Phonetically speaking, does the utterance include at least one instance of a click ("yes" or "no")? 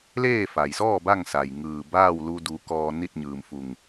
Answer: no